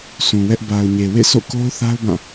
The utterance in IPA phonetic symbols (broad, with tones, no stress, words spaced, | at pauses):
sʰũ˨wɛ˦ʔ ba˨ʊ̯ɲe˨ wḛ˦˨so̰˦˨ ko˦ʊ̯ θa˦ʊ̯bã˦˨